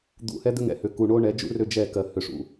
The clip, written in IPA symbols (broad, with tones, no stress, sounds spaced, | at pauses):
d̪ ṵ˨ h ɛ˦ d̪ ʏ˦ ŋ ɛ̰˨ h ʏ˨ k u˨ ɳ o˦ ɳ ɛ˨˦ d͡ʒ ṵ˦ r ʏ˦ d͡ʒ ɛ˦˨ k ɜ˨ h ʏ˨ ʂ ṵ˨